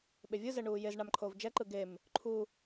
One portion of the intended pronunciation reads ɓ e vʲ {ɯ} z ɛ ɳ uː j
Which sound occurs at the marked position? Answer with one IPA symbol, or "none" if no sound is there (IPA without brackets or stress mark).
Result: ɯ